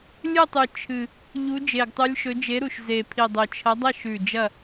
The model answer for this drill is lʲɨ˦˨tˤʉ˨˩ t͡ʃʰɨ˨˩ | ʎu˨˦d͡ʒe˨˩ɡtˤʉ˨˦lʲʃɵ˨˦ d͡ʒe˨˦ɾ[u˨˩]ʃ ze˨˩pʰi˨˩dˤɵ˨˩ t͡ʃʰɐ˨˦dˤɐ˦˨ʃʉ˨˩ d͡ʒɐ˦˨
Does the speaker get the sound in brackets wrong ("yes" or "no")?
no